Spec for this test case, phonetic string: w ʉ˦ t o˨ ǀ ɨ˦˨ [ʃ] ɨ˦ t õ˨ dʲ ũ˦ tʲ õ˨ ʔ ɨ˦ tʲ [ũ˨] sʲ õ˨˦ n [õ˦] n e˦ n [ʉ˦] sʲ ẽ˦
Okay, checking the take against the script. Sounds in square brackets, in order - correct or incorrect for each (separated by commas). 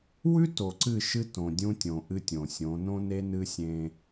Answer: correct, incorrect, correct, incorrect